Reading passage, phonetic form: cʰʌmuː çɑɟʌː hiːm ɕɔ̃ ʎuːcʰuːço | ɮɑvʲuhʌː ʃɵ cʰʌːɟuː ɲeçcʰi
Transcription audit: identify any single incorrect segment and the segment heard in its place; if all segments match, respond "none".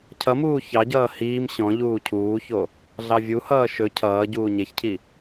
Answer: none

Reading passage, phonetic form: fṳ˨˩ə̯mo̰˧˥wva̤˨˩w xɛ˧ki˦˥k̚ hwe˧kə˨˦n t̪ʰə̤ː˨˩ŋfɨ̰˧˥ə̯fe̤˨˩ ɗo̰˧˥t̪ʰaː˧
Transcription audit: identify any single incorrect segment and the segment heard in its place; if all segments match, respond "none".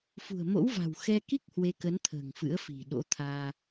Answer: e̤˨˩ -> i̤˨˩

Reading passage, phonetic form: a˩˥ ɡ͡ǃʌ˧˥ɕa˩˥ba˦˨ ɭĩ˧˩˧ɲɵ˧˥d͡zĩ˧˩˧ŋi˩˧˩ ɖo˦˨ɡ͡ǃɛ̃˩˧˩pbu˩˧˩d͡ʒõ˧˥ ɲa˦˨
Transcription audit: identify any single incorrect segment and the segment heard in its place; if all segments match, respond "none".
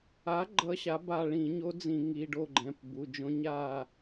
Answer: ɵ˧˥ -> o˧˥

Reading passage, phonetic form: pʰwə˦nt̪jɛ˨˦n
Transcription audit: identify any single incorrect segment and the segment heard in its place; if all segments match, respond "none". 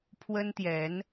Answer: none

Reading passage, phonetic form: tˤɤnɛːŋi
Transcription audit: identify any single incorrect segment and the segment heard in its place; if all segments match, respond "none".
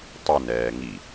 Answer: none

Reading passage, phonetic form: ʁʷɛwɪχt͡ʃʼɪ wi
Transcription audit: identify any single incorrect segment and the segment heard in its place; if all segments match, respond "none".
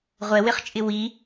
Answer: none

